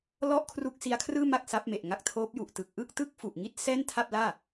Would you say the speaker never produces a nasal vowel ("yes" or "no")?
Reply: yes